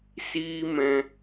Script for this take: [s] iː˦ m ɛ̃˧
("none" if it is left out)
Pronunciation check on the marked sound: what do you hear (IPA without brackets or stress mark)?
s